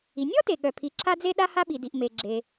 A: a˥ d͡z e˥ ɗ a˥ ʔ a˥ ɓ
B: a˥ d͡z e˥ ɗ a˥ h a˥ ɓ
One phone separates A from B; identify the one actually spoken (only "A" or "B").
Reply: B